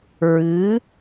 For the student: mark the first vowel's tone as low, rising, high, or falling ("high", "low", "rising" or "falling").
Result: rising